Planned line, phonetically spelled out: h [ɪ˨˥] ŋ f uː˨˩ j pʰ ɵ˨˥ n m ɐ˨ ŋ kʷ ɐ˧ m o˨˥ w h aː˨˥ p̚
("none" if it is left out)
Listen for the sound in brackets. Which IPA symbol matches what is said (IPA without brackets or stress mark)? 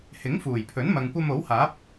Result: ɪ˨˥